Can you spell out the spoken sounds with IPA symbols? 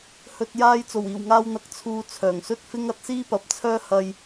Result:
h ɵ˨ t̚ j aː˧ j t͡s o˨˩ w iː˨˩ w ŋ aː˧ w n̪ ɐ˨˥ k̚ t͡sʰ uː˨ t͡sʰ œː˨˩ ŋ s ɵ˥ t̚ f ɪ˥ ŋ ɐ˨˥ t̚ s iː˥ p ɐ˨˥ p̚ t͡sʰ œː˥ h ɐ˧ j

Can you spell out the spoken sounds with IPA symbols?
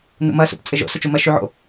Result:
n ṵ m ɐ s ṵ p t͡sʼ ɪ ʒ o̰ s o t͡ʃ u m ɐ ʃ y ʕ o̰

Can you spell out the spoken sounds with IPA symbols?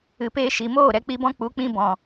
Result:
ɨ˨ p eː˧ ʃ i˨ m oː˦˨ ɾ ɛ˧ k͡p i˧ b ɔ̃˦ k͡p u˨˦ k͡p ĩ˧ b ɔ̃˨

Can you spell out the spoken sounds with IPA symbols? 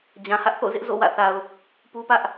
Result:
d͡ʑ ã˨ h ä˦ ʔ θ o̰˦˨ z ɪ˦ ʔ z o̰˦˨ w ä̰˦˨ θ a˨ ʊ̯ | p u˦ p ä˦ ʔ

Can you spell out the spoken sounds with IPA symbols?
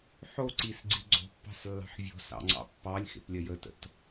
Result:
ħ o ǀ i s ɡ͡ǀ i ɡ͡ǀ o̤ pː ɑ̤ s lː ɑ̤ ħ vʲ o̤ s ɑ̰ ŋ͡ǀ ɑ̰ pː ɑ lʲ x ḛ p lʲ ɐ j ə t ə̰ t

